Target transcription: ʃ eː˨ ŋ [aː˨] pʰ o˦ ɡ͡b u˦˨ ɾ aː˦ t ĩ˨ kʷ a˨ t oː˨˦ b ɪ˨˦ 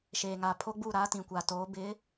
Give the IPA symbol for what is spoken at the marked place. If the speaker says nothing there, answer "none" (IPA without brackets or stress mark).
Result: aː˨